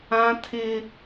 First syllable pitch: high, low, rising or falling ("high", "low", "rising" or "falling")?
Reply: high